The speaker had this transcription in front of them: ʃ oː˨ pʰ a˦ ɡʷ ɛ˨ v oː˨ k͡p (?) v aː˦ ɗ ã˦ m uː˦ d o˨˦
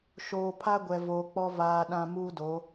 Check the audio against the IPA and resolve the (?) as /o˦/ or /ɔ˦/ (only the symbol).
ɔ˦